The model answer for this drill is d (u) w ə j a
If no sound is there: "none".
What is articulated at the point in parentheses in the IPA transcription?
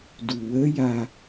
u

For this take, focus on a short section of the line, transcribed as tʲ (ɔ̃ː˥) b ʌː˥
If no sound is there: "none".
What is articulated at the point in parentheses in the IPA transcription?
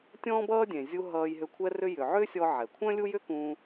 ɔ̃ː˥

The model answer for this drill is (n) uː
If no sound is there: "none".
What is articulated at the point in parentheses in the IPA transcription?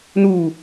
n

